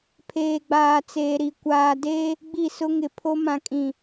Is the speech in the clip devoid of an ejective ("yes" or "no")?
no